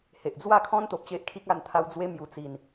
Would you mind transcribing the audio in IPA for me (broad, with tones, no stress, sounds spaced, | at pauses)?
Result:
h e˨ ʔ d͡z w a˥˧ kʰ ɔ̃˦ n t̪ o˨ p̚ ɕ e˦ ʔ kʰ i˦ k̚ a˥˧ n t̪ʰ a˧ w d͡z w e˧ m j u˨˩ t͡s i˨˩ n